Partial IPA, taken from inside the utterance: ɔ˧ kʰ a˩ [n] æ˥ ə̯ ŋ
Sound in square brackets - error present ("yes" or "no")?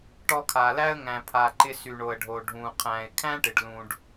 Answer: yes